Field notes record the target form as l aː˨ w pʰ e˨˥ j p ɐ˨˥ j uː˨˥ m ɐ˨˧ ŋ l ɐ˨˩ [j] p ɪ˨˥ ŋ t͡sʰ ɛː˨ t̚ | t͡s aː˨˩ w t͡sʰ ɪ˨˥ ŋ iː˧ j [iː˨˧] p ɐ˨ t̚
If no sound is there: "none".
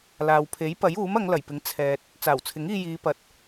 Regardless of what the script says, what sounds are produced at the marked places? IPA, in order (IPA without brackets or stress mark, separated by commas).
j, iː˨˧